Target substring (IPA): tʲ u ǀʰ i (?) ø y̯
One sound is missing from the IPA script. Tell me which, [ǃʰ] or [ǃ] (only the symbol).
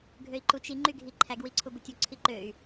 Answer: ǃ